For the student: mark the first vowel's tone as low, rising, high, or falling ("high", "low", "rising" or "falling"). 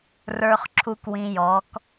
high